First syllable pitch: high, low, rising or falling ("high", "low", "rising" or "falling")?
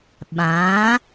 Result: rising